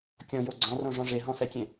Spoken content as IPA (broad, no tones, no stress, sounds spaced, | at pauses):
kʲ ɔ̃ j o ɡ͡ǀ ɔ̃ r õ ʐ ɔ̃ ʐ e ɦ ɔ̃ s ɛ kʲ ẽ